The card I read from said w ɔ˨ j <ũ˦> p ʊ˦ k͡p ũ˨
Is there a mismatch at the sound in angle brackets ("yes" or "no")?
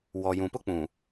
yes